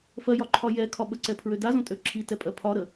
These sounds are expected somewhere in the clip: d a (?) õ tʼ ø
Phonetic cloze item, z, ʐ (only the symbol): z